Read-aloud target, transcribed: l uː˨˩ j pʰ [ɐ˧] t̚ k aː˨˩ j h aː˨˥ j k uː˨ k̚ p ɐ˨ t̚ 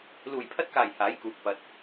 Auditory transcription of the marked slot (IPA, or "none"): ɐ˧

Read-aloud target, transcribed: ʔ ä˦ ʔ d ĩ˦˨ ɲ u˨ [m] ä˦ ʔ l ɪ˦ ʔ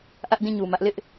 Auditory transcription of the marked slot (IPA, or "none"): m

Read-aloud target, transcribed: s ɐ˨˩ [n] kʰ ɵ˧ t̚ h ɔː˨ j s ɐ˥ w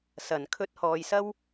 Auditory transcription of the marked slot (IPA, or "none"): n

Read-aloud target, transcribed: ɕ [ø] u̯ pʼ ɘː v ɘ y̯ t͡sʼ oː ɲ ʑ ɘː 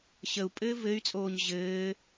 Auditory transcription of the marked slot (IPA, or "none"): ə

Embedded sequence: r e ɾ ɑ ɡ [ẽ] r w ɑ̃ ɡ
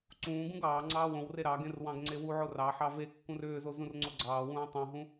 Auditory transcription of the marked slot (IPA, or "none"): ẽ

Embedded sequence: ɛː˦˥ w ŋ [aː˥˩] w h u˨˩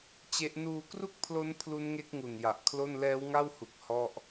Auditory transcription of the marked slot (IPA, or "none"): a˥˩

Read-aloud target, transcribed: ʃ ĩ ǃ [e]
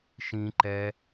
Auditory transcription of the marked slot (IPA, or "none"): ɛ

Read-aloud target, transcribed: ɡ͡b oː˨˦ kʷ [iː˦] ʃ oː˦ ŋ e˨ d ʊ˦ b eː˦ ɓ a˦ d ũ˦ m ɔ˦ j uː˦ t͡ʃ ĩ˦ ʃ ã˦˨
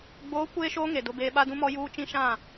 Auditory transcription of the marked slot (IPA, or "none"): eː˦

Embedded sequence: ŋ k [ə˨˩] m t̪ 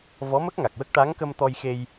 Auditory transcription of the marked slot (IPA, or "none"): ə˧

